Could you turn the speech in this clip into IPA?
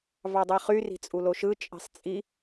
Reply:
v ɑ dˤ i χ y r i̤ t͡sʼ u l o ʃ ɯ t͡ʃʼ i̤ sˤ t͡sʼ i

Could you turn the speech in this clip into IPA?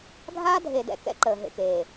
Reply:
ɡʱ aː˦ dʱ e˨ d ɛ̰˨ k ɛ̰˦ ǃ əː˨ ɦ ḛ˨ k eː˨

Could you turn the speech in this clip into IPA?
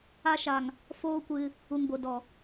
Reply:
a˧ ʃ a˨ ŋ | f oː˦ kʷ ɨ˧ | u˨ ŋ b o˨ d ɔ˨

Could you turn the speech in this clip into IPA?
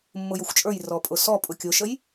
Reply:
mː ʊ j ʊ xʷ t͡ʃʼ ə˞ j r ɔ pʼ ʊ s ɔ pʼ ʊ kʲ ʊ ʃ ə j

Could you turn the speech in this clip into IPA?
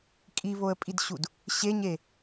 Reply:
kʼ i β o ə̯ pʼ i d ɕ u d | ɕ e ɲ e

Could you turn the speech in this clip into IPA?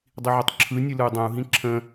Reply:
dˤ i ʕ ɪ tˤ ǁʰ ɯ nʲ ɨ l ɯ y̯ dˤ ɛ̃ u̯ ɦ ĩ ǁʰ ə̃

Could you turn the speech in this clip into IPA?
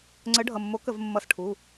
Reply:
ŋ͡ǀ ə˨˥ ɖʱ ʌ˩˧˩ mː o˨˥ k ə˧˩˧ v mː ʌ˧˩˧ s ʈʰ u˩˧˩

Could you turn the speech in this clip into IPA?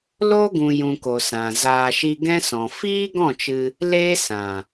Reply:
l o˦ ɡ ũ˨ j ũ˨ k o˨ s ã˨ z aː˧ ʃ i˧ ɡ ɛ̃˦ s ɔ̃˨ f iː˦ ɡ ɔ̃˦˨ t͡ʃ ɨ˧ | l eː˦ s ã˨

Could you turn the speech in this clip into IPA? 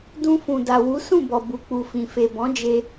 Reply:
d ũ˧ f ũ˨ d a˨ w u˨˦ s ũ˦˨ b ɔ˨ b u˨ k͡p u˨ f ĩ˨ f e˨ b ɔ̃˨˦ d͡ʒ e˧

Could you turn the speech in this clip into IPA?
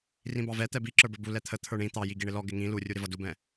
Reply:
r ĩ b ɑ v ɛ t̪ ɛ b i ǁ ə˞ b ə˞ b u l ɛ t̪ʰ ə t̪ʰ ə˞ ɳ ĩ t̪ ɑ j i ɡ i ɳ ɪ l ɔ ɡ ɪ ŋ ĩ l u rʲ u ɾ ɪ v ʌ d u b ɛ̃

